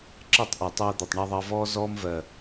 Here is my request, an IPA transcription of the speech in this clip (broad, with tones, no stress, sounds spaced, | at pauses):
ǁ ɜ˦˨ tˤ ʔ e˨ tˤ ɜː˧ d̪ ɜ˨ tˤ ɳ a˧ ðˤ ɑ˧ v ɔː˦ z ɔː˦ m v ɜ˨